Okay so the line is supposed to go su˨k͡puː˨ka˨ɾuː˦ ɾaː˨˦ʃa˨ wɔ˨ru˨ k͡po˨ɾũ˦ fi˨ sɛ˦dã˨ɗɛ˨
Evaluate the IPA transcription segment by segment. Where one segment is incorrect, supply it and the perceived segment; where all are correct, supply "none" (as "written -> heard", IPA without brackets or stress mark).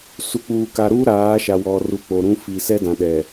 none